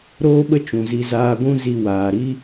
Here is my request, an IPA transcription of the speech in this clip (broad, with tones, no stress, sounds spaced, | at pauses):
ɾ oː˦ ɓ ə˦ t͡ʃ ũ˨ z i˧ z aː˧ ɡʷ ũ˦ z i˧ w aː˨ ɾ i˦